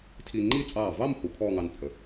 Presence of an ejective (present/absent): present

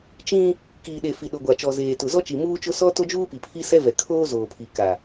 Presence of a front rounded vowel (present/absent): absent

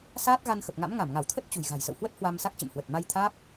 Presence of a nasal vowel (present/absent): absent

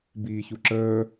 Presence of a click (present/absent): present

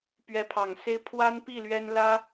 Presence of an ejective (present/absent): absent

